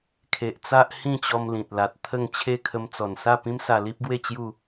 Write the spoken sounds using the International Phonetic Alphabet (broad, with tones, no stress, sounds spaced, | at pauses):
kʰ e˨ ʔ t͡s a˦ ʔ h ĩ˥˧ t͡ɕ ɔ˧ m l ĩ˨ t̚ l a˨ t̚ t̪ʰ ə˥˧ ŋ t͡ɕʰ e˦ kʰ ə˧ m t͡s ɔ˨˩ n s a˥˧ p ĩ˦ m s a˧ l i˦ p̚ ɡ w e˥˧ t͡ɕ j u˥˧